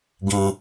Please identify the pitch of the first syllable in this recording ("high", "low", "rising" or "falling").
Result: low